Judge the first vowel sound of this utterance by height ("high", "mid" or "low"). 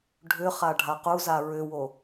high